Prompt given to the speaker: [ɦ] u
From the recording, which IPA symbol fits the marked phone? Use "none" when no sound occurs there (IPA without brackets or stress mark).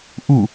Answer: ʔ